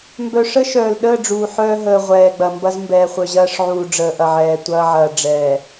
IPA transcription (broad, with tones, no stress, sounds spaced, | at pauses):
m b œ˨ ʂ ə˦ ʃ œː˨ l ɗ əː˦˨ ɖ͡ʐ uː˨ ħ œː˦ ɦ əː˨ ʁʷ ɛː˨ ɡ͡b ɐ˨ m b ɐ˦ z m b ɛː˨ χʷ œ˨ ʑ ɐː˦ ʂ ʕ uː˨ ɖ͡ʐ əː˨ ʔ ɐ˨ ʕ ɛː˨ tʷ ɐː˦ ʕ ɐː˨ ɖ͡ʐ ɛː˨